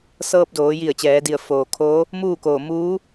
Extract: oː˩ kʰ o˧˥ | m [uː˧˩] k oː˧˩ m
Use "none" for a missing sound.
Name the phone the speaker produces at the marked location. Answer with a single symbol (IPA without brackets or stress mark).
uː˥˨